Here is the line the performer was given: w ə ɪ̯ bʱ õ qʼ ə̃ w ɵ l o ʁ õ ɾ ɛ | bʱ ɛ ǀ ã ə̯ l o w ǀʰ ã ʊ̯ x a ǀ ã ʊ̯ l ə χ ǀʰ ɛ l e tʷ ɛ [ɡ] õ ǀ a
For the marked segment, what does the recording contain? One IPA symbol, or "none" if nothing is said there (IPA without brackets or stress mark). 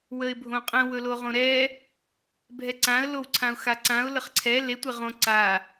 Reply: ʁ